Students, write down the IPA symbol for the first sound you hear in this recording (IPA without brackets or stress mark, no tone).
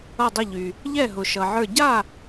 ʌ